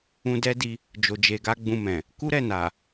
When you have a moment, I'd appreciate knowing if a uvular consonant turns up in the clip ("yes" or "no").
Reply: no